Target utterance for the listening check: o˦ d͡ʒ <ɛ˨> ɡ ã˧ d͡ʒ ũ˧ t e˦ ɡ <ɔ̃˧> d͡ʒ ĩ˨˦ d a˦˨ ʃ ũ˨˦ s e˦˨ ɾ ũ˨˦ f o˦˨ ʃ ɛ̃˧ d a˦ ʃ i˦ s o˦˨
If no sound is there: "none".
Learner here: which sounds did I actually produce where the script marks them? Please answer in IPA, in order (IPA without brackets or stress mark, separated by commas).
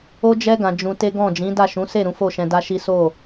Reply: ɛ˦, ɔ̃˦˨